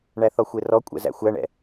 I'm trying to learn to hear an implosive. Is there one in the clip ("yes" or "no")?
no